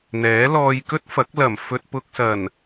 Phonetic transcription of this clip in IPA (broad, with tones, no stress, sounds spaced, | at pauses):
n̪ ɛː˨˥ l ɔː˧ j k ɵ˥ t̚ f ɐ˨˥ k̚ l ɐ˨˩ m f ɵ˨ t̚ p ʊ˨ k̚ s ɐ˨˩ n